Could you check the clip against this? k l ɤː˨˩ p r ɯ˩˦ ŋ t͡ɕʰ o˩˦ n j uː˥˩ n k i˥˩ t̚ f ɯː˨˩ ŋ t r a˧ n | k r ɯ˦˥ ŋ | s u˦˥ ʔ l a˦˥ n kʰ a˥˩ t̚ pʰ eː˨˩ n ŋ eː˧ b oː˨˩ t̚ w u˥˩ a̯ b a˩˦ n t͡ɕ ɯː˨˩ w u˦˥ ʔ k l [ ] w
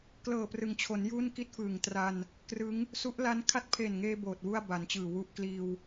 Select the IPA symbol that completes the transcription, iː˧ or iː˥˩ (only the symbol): iː˧